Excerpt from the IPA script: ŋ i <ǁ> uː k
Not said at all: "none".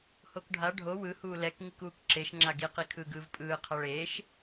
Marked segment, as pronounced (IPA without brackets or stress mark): k